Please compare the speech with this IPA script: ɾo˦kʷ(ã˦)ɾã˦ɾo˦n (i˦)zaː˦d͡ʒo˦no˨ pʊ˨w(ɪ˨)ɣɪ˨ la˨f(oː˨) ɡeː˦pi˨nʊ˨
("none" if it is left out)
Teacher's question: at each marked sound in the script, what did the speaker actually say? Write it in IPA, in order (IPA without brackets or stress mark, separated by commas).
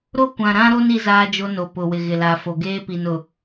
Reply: ã˨, i˦, ɪ˨, o˨